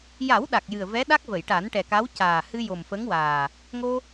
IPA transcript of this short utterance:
j a˨˩˦ w ɗ a˨˩ k̚ j ɨ˨˩ ə̯ v ɛ˧˥ ɗ a˦˥ k̚ v ə˨˩˨ j ʈ a˨˩˦ n ʈ ɛ˨˩ k a˧˥ w c aː˨˩ h ɨ˧ j o˨˩ m f ə˧˥ ŋ w aː˨˩ | ŋ o˧

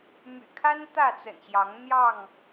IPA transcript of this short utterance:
m y̰˨˩ kʰ a˦ n t̪ ä˥˨ t͡s ə̰˨˩ n ɕ j ɑ˨˦ ŋ n̪ j ɑ˥˨ ŋ

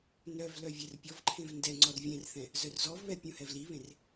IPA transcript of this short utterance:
n œ v l œ vʲ ɛ r pʲ ɔ v ǃʰ ẽ v n d ɛ ŋ͡ǀ ɔ r vʲ ɛ̃ r θ ɛ̃ | z œ r z ɔ v β ɛ pʲ ũ h ɛ v l i β ẽ r

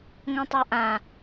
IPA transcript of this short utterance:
ŋ õ tˤ a ʔ ã

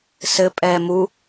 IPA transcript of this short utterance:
s ɘ pʼ ɛː m u

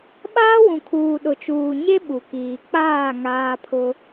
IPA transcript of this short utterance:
ɓ aː˦ w ũ˨ kʰ uː˨ ɗ ʊ˨ t͡ʃ uː˨ ɲ e˦ ɓ u˨ k iː˨ k͡p aː˦˨ ŋ aː˦ pʰ ʊ˦

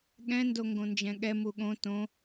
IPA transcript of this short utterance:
ɠ ɛ̃ n d o ŋ ɡ õ n d͡ʒ ɛ̃ ɠ ɛ m u ɠ õ t õ

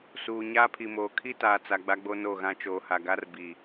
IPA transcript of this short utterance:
s uː˨ ɲ aː˦ pʰ i˨ m oː˨ kʰ i˦ t aː˨ t͡s a˨ ɡ͡b a˦ ɡ͡b o˦ n o˦˨ ɣ ã˦ t͡ʃ oː˨ h a˨ ɡ a˦ r b i˨

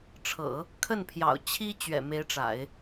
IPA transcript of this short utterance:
ʈ͡ʂʰ ɤ̰˨˩˦ | kʰ ə˥˩ n pʰ j ɑ̰˨˩ ʊ̯ t͡ɕʰ i˥ t͡ɕ ɥ ɛ̰˨˩ m e˧˥ ɪ̯ ʈ͡ʂ a̰˨˩˦ ɪ̯

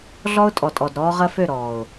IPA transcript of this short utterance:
ɮ ɔ˦ ʊ̯ tʼ ɔ˨ tʼ ɔ˨ d ɾ ɔː˦ ʁ ɐ˦ f ø˦˨ ɾ ɔː˨ ʊ̯

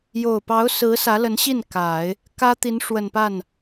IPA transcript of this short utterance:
j o˨˩ ʊ̯ p ɑ˧˥ ʊ̯ s ɹ̩˧˥ s ä˧˥ l ə˧˥ n ɕ i˥˩ n k a˨˩˦ ɪ̯ | k ä˥ t̪ i˧˥ n ʂ w ə˨˩ n p a˥˩ n

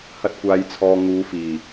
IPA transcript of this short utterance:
h ɐ˧ t̚ kʷ aː˨ j t͡sʰ ɔː˨ ŋ uː˨˧ f iː˨˩

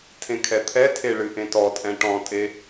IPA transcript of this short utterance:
tʰ ẽ kʰ ɛ t̪ʰ ɛ tʰ e ɭ ɨ ʔ ẽ t ɔ tʼ ɛ̃ ʈ ɔ̃ tʼ e

